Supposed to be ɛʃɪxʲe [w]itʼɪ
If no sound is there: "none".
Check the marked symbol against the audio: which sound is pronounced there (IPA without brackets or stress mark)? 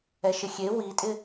w